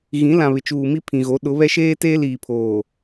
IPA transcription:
ɣ ĩ˨˦ l ã˨ β ɪ˨ t͡ʃ uː˨ m i˦ pʰ ĩ˨ ɣ o˨˦ ɗ ʊ˨˦ β ɛ˦ ʃ eː˦ t eː˦ l iː˨ pʰ oː˨

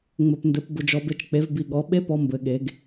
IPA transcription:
ŋ͡m ɘ˩ p n d ɘ˩˧ p b ʊ˩ d͡ʒ ɔ˩ b e˧ t͡ʃ k͡p e˩˧ v b i˩ ɠ ɔ˩˧ ɓ e˥ p ɔ˧ m b ɘ˩ ɠ e˩˧ ɡ

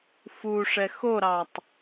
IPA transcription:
f u ʂ ɛ x o ɾ ɑ tˤ

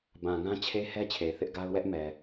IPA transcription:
b ã˨ ŋ ã˦ t͡ɕʰ e˦ h ɛ˦ t͡ɕʰ e˨ θ ɪ˦ ʔ ɡ a˦ ʊ̯ w ɛ˦ ʔ m ɛ˨

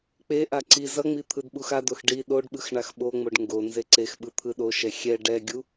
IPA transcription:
k͡p e ʔ a ǀ i z ʌ ŋ͡m i t̪ʰ ɯ d ɓ u x a d o x ɖ i ɗ o ɖ ɓ ɯ x ɳ a x ɓ o ŋ͡m o ɖ ŋ ɡ o n z e ǀ e x ɓ ɯ t̪ʰ ɯ ɗ o ʃ ɛ xʲ ɛ ɖ ɛ ɡʲ u

